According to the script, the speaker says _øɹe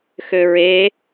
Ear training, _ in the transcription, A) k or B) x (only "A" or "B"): B